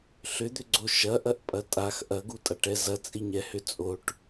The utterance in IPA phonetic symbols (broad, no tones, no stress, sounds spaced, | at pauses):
ɬ ʏ d̪ ʏ ɡ͡ǀ o ʃ ɐ ʔ ɐ ʔ pʼ ɐ tʼ a x ʔ ɐ ɡ u tʼ a ʈ ɛ z ɐ t͡sʼ i ɲ ɛ h ʏ t͡sʼ o ʈ